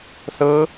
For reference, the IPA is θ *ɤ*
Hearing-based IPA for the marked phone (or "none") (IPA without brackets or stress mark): ɤ